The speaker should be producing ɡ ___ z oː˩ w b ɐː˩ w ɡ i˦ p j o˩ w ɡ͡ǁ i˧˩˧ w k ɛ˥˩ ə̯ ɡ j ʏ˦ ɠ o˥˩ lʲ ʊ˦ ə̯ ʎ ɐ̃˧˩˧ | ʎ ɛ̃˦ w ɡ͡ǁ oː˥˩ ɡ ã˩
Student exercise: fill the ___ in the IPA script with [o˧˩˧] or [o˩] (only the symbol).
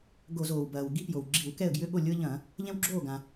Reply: o˧˩˧